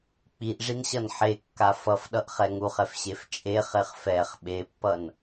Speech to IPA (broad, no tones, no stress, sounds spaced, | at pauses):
k͡p i ʔ ʐ i n ɕ ʌ n ħ e kː a f ʌ f ɗ ʌ ʔ χ ɛ ŋ u χ ɛ f ɕ e f t͡ʃʼ e χ e χ f ɛ χ ɓ e pː ʌ n